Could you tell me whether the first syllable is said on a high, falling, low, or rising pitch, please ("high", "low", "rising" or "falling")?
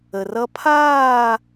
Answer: low